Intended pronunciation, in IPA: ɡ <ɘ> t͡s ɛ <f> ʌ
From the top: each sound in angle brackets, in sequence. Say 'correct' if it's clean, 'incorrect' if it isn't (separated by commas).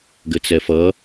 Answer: correct, correct